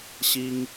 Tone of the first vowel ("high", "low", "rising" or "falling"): high